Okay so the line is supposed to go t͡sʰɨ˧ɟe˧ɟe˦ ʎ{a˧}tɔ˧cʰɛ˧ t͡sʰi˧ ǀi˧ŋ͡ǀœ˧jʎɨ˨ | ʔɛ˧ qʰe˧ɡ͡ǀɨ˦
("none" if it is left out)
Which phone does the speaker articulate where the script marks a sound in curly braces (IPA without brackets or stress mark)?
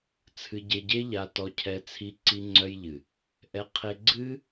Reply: a˧